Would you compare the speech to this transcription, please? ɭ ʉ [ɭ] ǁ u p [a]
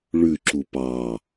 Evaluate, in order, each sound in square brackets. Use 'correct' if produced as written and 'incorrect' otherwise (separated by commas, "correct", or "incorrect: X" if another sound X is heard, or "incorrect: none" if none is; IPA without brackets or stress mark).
incorrect: none, incorrect: ɑ